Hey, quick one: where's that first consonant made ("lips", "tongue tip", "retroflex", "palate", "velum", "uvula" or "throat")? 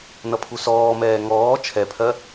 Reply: tongue tip